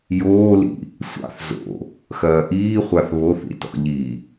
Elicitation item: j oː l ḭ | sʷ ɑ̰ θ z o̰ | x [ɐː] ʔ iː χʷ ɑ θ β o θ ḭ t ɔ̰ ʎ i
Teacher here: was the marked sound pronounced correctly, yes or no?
yes